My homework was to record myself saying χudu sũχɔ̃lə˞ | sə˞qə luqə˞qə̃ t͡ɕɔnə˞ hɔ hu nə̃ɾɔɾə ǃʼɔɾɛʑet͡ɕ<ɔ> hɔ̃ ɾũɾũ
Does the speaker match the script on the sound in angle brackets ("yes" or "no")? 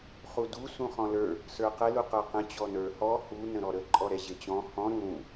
no